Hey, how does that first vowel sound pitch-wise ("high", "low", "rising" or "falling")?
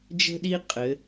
high